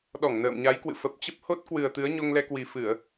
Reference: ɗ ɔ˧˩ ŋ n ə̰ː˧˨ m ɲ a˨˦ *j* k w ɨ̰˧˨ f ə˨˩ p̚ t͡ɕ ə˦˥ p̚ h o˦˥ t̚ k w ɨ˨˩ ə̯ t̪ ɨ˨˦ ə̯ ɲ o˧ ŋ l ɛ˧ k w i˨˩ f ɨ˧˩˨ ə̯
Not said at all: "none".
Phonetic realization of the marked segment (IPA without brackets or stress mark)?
j